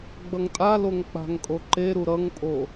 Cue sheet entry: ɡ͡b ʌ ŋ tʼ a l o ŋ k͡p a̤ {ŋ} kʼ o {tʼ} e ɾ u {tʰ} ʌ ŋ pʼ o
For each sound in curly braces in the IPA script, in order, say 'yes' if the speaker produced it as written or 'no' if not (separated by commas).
yes, no, no